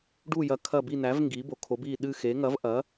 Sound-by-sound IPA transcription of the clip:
ɖ u˦˨ j ɐ˨˥ kʰ ɐ˦˨ b i˦˨ n æ˨˥ v ŋ ɡ iː˨˥ b o˨˥ kʰ o˨˥ b iː˦˨ ɗ ɨ˦˨ x e˨˥ ŋ ɐ˨˥ v ʔ ɐ˨˥

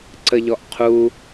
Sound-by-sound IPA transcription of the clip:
ǀ ə ʎ ɔ ʔ qʰ u

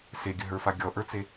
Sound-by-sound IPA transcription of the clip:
s e ɡʲ ɵ ɦ ə˞ f a ɡʲ ɔ ʔ ə˞ t͡s e

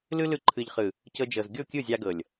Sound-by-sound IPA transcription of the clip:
l ɯ˦ l ɯ˧ ǃʰ ɯ˨ ʎ χ ɯ˨ | c ɤ˧ d͡ʒ ɤ˨ z ɡʲ o˦˨ kʲ ɯ˦˨ zʲ a˧ ɡ ɤ˨ lʲ

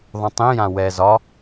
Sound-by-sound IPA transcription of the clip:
ðˤ ũ tˤ ĩ j ã w ɛ z ɒ

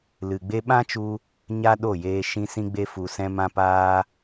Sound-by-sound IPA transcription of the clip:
l ɨ˨ ɡ͡b e˦ ɓ ã˦ t͡ʃ u˧ | ɲ a˦ ɗ o˦˨ j eː˧ ʃ ĩ˧ s ĩ˧ ɡ͡b e˧ f u˨ s ɛ̃˧ m ã˧ p aː˧

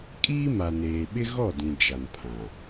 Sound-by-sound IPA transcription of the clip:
kʼ iː˦ m a˨ n eː˨ ɓ ɪ˦ ɣ ɔ˦˨ d ĩ˨ d͡ʒ a˨ n pʰ ã˨

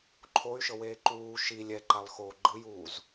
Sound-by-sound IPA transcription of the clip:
ǃʰ o y̯ ʃ ɤ w eː ǃ uː ʃ i lʲ ɛ ǃ a lˠ x oː ɡ͡ǃ ɯ j uː z

